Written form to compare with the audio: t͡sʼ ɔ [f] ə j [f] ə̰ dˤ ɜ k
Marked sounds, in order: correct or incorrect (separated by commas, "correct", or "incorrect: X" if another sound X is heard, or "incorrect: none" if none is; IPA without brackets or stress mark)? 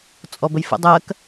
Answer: incorrect: b, correct